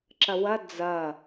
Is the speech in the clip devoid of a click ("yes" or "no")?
no